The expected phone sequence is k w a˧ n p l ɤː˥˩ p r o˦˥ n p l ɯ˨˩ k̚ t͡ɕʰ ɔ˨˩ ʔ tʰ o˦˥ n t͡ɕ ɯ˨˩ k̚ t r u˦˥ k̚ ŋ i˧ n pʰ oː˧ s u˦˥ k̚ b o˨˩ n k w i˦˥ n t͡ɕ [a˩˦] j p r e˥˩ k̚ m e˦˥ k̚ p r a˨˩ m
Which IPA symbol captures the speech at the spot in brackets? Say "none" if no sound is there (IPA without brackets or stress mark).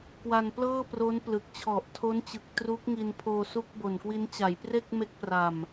a˩˦